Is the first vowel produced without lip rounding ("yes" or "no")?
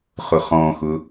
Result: no